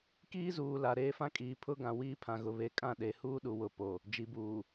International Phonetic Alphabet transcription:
k iː˦ z uː˨ l a˨ ɾ eː˦ f ã˦ kʼ iː˨ pʰ ʊ˦ ɡ ã˨ w iː˦ pʰ ã˨ ɣ ʊ˨ β e˨ kʼ ã˦˨ ɗ e˨ h uː˦ ɗ u˨ w ʊ˨ p o˨ | d͡ʒ i˨ b uː˨

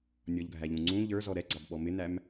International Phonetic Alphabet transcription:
nʲ ɔ ʎ ɡʱ æ ʎ ũ ŋ͡ǀ ũ ʎ ə˞ z ɔ ɾ ɛ ɡ͡ǀ ɑ b ɓ ɔ m ɪ n æ m

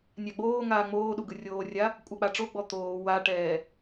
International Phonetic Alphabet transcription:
nʲ a ɡ͡b oː ŋ aː ŋ͡m oː ɗ u ɡ ɯ rʲ oː rʲ a | kʷʼ a k͡p a ʈ͡ʂ o ɡ͡b ɔ t̪ oː w a ʈ ɛː

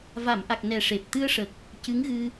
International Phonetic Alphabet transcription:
v a˨˩˨ m ʔ a˨˩ k̚ n ɛ˨˩ ʂ e˨˩ p̚ t̪ ɨ˧ ə̯ ʂ ə˨˩ k̚ | c ɨ˧˥ ŋ ɣ ɨ˧

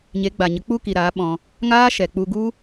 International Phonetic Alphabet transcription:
ɲ e˨˦ ɡ͡b a˨ ɲ ə˨˦ k͡p u˦ k i˨ ɾ aː˨˦ ɓ ɔ̃˧ | ŋ aː˦ ʃ ɛ˨ k͡p u˧ ɡ u˦

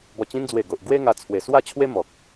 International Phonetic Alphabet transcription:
b ɔ˨˩ t͡ɕ ĩ˧ n d͡z w e˨˩ ɡ o˨ ʔ ɡ w e˦ ŋ a˧ t͡sʰ w e˨˩ s w a˥˧ t͡ɕʰ w e˦ m ɔ˨ k̚

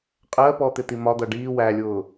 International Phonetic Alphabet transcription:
qʼ ɜ p ɔ t̪ ɪ t̪ i m ɒ d̪ ʌ ɖ iː w æ lʲ ʊː

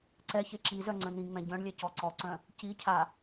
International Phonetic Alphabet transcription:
ǀ ɛ ç e ǁ i z œ ŋ͡ǀ œ̃ n̪ ĩ ŋ͡m ɛ̃ ɟ œ̃ ɳ lʲ ɛ c ɔ ǀ ɔ ǀ œ̃ | c i cʰ a

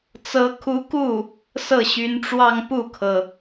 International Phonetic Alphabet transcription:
t͡s ɤ˧˥ kʰ u˧˥ k u˥˩ | s ɤ˥˩ ɕ y˧˥ n ʈ͡ʂ w ɑ˥˧ ŋ p u˥˩ kʰ ɤ˩

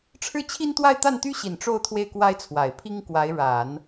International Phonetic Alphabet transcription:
ʈ͡ʂʰ ɻ̩˥˩ t͡ɕʰ i˥ n t̪ w a˥˧ ɪ̯ t̪ a˥˩ n t̪ y˥ ɕ i˨˩ n ʈ͡ʂ o˥˧ ʊ̯ t̪ʰ w e˥˩ ɪ̯ k w a˥ ɪ̯ t͡sʰ w a˨˩ ɪ̯ pʰ i˥ ŋ k w a˧˥ ɪ̯ ɻ a˨˩˦ n

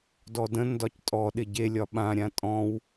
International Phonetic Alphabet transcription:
d ɔ d ə̃ n d ɒ c tʼ ɔ ɗ ɪ ɟ e lʲ ɒ ɓ ã ɾʲ ã tʼ ɔ̃ w

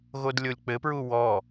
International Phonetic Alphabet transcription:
ɣ o d lʲ o lʲ k͡p ɘ p ɹ u w ɔ

